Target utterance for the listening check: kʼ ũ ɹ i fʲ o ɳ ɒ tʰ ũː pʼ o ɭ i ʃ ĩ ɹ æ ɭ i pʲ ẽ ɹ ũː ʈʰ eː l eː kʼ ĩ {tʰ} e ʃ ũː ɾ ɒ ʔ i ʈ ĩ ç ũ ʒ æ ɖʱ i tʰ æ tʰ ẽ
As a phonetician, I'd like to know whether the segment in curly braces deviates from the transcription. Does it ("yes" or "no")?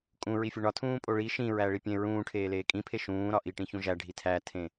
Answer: yes